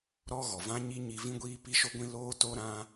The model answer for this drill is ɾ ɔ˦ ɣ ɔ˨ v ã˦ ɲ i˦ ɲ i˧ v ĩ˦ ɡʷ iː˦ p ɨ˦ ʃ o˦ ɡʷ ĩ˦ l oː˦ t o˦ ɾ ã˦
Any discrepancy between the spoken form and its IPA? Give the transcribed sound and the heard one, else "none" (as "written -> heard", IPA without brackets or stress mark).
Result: ɨ˦ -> i˦